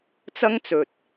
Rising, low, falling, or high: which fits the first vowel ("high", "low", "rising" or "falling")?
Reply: high